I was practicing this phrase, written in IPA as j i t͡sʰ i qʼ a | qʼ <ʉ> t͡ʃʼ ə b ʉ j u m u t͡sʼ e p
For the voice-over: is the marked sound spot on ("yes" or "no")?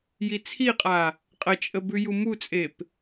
no